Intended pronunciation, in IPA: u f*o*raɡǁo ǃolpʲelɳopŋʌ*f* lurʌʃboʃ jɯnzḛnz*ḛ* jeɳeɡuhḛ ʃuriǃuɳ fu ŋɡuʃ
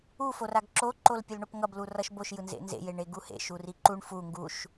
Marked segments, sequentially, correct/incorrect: correct, incorrect, correct

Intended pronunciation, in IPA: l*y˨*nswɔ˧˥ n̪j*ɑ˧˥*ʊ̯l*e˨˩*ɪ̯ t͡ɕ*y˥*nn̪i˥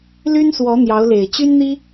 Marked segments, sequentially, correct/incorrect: incorrect, correct, correct, correct

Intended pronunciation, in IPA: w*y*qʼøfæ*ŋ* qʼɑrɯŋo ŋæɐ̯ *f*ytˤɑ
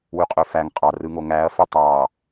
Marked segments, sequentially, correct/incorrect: correct, correct, correct

